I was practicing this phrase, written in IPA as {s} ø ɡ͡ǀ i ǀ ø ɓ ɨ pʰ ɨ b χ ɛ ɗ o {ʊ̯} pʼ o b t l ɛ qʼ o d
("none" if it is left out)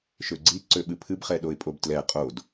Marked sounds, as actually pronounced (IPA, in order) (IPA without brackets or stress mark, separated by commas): ʃ, ɪ̯